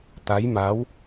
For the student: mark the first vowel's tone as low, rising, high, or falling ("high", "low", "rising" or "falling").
rising